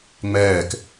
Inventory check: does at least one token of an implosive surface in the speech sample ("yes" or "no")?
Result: no